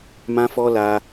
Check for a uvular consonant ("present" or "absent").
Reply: absent